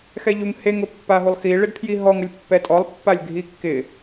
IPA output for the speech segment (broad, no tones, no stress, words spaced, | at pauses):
xɛʎuŋ heŋ ʊpːaɦulˠxi ɭɪdpʰjiɦɔŋʊlʲ pːɛtʼɔlˠpːalʲ ɡʱikːɪ